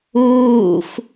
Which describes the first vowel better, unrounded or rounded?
rounded